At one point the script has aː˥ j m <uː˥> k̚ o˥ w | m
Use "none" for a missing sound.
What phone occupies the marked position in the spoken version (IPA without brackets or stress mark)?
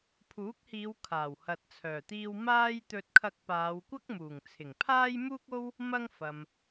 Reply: uː˥